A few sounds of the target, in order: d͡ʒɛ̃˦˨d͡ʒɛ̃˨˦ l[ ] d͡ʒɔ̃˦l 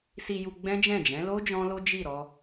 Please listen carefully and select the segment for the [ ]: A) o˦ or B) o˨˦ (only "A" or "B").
A